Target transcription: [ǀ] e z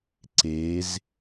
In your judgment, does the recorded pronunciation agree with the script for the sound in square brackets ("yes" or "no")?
yes